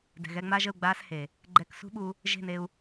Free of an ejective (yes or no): yes